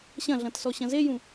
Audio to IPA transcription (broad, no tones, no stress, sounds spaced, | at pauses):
ɕ ɐ̃ ɮ ɐ̃ t s ɔ ɕ ɐ̃ z e j ũ